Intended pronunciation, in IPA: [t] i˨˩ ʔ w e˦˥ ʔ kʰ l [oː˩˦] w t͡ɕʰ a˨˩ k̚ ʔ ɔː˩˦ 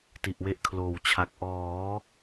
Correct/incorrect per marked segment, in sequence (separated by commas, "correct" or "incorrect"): correct, incorrect